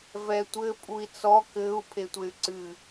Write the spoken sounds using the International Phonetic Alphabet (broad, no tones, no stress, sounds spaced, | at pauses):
v ɛ tʷ ɘ pʼ u i̯ t͡s ɔ k ɘ u̯ pʰ e tʷ e y̯ ǀ ɨ